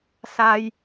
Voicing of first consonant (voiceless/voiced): voiceless